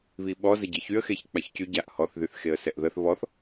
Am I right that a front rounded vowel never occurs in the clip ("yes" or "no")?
no